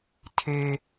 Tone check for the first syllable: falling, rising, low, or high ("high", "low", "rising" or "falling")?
high